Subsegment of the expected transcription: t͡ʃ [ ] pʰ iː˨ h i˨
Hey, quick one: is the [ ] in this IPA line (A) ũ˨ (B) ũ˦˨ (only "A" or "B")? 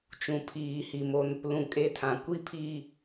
A